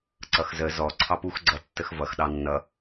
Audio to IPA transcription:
ǀ ʌ x z ə z ɔ ǀʰ ɑ p u x ɡ͡ǀ ʌ tː ə x v ʌ x ɗ ɑ nː ʌ

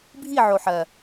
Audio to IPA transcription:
bʱ i˦˨ ʕ o˨˩ ħ ɜ˨˩

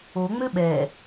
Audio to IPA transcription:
o ŋ͡m ø ɓ ɛ

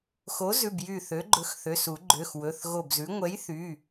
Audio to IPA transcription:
x o˨˥ z ʉ˩˧˩ b j y˧˩ θ ø˨˥ ɡ͡ǃ ɵ˨˥ x θ ø˩˧˩ s u˨˩˦ ɡ͡ǃ ø˩˧˩ x w ɵ˩˧˩ θ ɣ o˧˩ b z ʉ˨˥ ŋʷ ɛ˨˥ j θ y˩˧˩

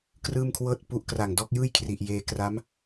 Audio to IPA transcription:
k r ɯː˥˩ m kʰ w ɤː˥˩ t̚ p u˦˥ ʔ k r a˨˩ ŋ d ɔː˦˥ k̚ j ɯː˥˩ j kʰ r i˨˩ ʔ j eː˧ k r a˦˥ m

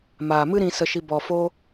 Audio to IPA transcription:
m aː˨ m ɨ˦ ɾ ĩ˧ s ə˧ ʃ i˧ b ɔ˨ f o˧

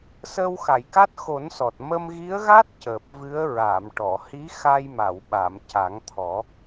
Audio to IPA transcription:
s əː˧ w x a˨˩˨ j k a˦˥ t̚ x o˨˩˦ n s ɔ˨˩ t̚ m ə˧ m ɣ i˧˥ ə̯ ɣ a˦˥ t̚ c əː˨˩ p̚ v ɨ˧˥ ə̯ ɹ a˨˩˨ m ʈ ɔ˨˩˨ h i˧˥ x a˧ j m a˨˩˨ w ɓ a˨˩˨ m c a˨˩˦ ŋ t̪ʰ ɔ˨˩˦

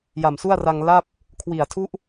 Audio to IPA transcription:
j a˨˩ m s u˥˩ a̯ r a˧ ŋ l a˥˩ p̚ | kʰ w i˨˩ a̯ tʰ u˥˩ ʔ

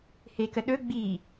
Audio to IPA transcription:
h e k ə ɗ ɵ ɡ͡b i

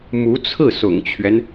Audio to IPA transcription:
m u˧˥ t͡sʰ ɹ̩˥˩ s ʊ̰˨˩ ŋ t͡ɕʰ ɥ ɛ˦ n

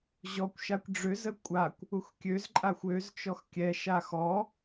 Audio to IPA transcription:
ʑ ɔ kʷ ʃ a kʷ ɖ͡ʐ ø z ə kʷʼ a kʷ | u x kʲ ø z ǃʼ a xʷ ø z t͡ʃ ɔ x kʲ ɛ ʃ a x ɔ

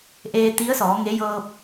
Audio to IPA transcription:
ʔ eː˧ t̪ i˧˥ ə̯ s ɔː˩˧ ŋ e˧˥ j ɤː˧ p̚

